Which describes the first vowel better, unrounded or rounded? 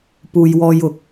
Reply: rounded